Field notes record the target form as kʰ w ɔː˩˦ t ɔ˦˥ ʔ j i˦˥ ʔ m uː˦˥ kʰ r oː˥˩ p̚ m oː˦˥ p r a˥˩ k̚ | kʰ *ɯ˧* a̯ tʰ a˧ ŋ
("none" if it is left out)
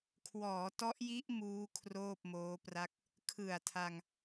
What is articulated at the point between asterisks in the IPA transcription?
ɯ˨˩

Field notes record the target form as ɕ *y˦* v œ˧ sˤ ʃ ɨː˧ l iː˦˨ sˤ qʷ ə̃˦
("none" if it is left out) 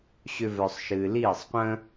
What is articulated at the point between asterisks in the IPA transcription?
ʏ˦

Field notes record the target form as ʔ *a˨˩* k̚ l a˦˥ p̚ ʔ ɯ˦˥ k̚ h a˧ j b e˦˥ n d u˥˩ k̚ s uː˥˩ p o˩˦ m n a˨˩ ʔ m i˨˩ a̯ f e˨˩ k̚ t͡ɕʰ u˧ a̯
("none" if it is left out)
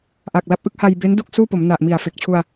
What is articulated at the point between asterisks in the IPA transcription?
a˨˩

